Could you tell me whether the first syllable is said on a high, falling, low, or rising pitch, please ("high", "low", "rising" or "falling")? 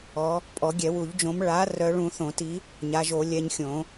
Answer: rising